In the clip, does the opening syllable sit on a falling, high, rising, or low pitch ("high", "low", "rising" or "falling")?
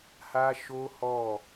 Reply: high